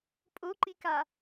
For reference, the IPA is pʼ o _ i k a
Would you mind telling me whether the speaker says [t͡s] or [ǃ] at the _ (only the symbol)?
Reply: ǃ